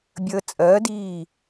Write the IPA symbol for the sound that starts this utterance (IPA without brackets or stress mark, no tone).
bʲ